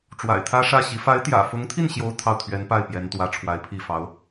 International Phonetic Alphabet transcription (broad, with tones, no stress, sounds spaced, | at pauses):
ʈ͡ʂ w a̰˨˩ ɪ̯ t̪ʰ ä˥ ʂ ä˥˩ ɕ i˧˥ f a˧˥ ɪ̯ t̪ j ä̰˨˩ f ʊ˧˥ ŋ t̪ʰ i˥˩ n ɕ j o˥ ʊ̯ t̪ʰ ɑ˥˩ ʊ̯ t̪ʰ ɥ ɛ˧˥ n p a˥˩ ɪ̯ p j ɛ˧˥ n t̪ w ä˧˥ ʈ͡ʂʰ w a˧˥ ɪ̯ pʰ i˥˩ f ɑ˧˥ ʊ̯